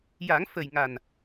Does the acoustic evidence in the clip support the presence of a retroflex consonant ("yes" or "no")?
no